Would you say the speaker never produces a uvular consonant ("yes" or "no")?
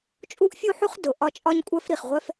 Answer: no